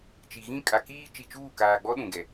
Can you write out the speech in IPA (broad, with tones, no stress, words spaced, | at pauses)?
t͡ʃi˨ɣĩ˦ kʼa˨ kiː˦ t͡ʃi˨t͡ʃuː˦˨kaː˨ɡ͡bɔ˦ ɗũ˨ɡɛ˨